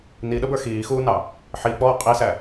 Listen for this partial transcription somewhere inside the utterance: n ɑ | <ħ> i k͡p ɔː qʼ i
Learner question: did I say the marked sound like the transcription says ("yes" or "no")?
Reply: yes